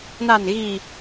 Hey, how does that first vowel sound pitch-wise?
low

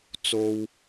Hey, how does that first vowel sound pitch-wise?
high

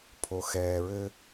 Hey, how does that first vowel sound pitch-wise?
low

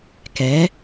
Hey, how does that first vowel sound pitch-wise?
rising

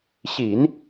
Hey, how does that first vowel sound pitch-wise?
low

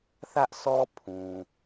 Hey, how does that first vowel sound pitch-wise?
high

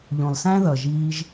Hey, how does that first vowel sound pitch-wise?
low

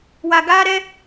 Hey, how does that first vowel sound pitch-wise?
low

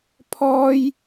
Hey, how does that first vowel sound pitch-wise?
high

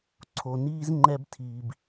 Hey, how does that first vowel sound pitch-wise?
low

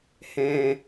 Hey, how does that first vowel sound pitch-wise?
low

